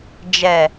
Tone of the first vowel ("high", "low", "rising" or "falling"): low